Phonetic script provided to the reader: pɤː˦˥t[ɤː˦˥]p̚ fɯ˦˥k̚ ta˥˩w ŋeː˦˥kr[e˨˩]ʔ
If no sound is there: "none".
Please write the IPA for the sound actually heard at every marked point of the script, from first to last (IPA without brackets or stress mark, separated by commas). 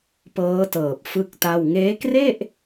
ɤː˨˩, e˥˩